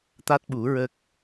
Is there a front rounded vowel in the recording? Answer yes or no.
no